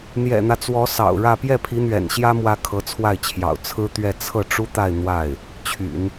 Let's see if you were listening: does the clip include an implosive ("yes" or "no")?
no